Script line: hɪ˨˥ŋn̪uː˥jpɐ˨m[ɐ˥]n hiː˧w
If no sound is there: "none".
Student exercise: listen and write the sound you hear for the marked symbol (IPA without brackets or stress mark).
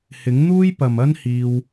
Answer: ɐ˥